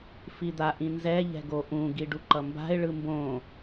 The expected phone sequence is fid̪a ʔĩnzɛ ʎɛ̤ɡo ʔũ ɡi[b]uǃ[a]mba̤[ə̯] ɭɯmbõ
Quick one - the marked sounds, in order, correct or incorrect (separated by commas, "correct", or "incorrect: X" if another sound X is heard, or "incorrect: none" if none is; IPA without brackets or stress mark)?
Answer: incorrect: ɖ, incorrect: ʌ, incorrect: ɪ̯